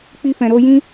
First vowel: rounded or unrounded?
unrounded